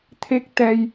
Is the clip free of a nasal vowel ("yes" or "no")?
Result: yes